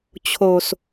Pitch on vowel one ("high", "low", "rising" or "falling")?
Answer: low